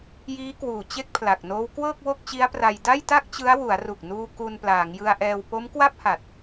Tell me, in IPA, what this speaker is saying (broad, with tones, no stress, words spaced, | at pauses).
jiː˦˥kwuː˨˩ t͡ɕe˥˩k̚pʰla˨˩k̚noː˦˥w kwɤː˥˩k̚ wo˥˩k̚t͡ɕi˦˥a̯pra˧j da˥˩jta˥˩k̚t͡ɕɯ˦˥a̯ wu˩˦a̯ru˨˩k̚nuː˧ ku˧nplaː˩˦ŋjɯ˧a̯ʔɛː˧w po˦˥mkwa˥˩p̚ha˨˩t̚